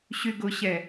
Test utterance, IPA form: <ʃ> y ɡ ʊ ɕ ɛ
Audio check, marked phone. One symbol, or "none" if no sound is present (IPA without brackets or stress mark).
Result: ɕ